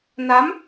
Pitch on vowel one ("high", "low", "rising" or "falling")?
rising